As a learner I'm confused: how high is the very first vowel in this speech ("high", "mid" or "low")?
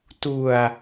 high